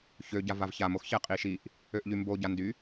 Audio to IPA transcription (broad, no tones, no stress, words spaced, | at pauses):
çøɟa vavçamoxçɛ qʼiʃiʔ | øʔʎymboɟa ndy